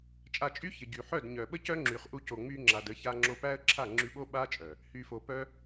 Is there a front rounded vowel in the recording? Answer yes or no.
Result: yes